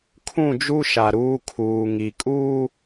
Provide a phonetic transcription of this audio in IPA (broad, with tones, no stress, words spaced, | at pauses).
kʰũ˦˨d͡ʒu˦ʃa˨ ɾuː˦kʰuː˨ŋi˨ kʼuː˦